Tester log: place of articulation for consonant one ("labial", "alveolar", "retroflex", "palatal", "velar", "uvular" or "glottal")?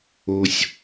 alveolar